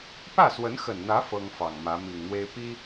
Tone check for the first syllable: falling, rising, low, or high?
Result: falling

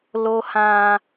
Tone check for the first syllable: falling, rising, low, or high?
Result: high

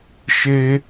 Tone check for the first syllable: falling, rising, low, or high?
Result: high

